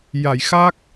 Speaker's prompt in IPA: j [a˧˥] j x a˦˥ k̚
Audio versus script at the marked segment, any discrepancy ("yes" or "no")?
yes